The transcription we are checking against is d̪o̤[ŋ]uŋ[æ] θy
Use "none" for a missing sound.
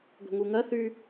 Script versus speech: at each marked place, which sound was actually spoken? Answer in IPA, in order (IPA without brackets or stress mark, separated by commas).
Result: ŋ, ɜ